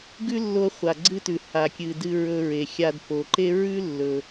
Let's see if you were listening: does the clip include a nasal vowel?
no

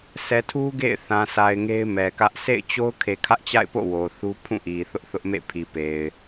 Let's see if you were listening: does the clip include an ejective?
no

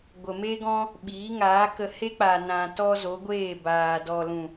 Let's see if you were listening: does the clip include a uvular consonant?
no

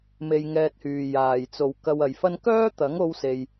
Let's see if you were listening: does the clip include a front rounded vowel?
yes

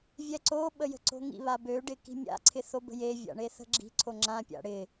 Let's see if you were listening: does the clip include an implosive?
yes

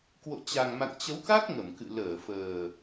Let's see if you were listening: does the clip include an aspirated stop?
no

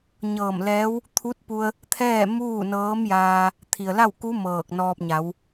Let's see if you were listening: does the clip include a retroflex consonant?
no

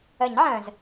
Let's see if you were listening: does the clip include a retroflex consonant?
no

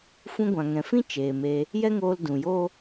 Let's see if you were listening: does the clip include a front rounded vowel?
no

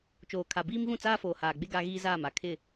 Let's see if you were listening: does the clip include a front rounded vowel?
no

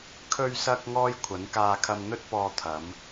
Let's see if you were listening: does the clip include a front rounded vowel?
no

